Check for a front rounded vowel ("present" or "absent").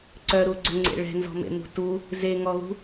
present